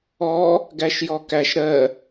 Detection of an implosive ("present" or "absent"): absent